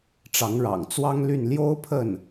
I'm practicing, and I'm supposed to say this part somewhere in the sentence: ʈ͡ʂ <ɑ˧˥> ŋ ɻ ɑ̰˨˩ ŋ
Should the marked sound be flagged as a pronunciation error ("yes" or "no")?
no